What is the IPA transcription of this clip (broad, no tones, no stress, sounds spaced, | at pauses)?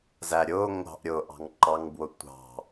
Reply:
z æ ɾʲ ʊː ŋʷ ɑ̤ ʔ ɾʲ ʊː ʔ ɑ̤ ŋ ǃ ɑ ŋ b w ʊ tʷ ɑ̤